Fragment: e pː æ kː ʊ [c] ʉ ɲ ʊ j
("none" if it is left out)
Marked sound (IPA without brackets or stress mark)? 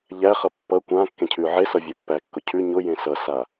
cʰ